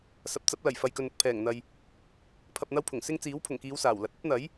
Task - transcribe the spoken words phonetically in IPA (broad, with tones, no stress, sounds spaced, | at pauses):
s ɐ˨˥ p̚ t͡s ɐ˨˥ p̚ l ɐ˨˩ j f ɐ˨ j k ɵ˨ n ʊ˨ k̚ pʰ ɛː˨˩ ŋ n̪ ɐ˨ j | pʰ ɐ˧ p̚ n̪ ɐ˥ w pʰ ʊ˨˩ ŋ s ɪ˥ ŋ t͡s iː˨˥ w pʰ ʊ˨˩ ŋ k iː˨˧ w s aː˨˩ w l ɐ˨ t̚ ɐ˥ p̚ n̪ ɐ˨˥ j